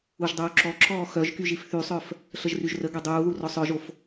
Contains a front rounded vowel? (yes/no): yes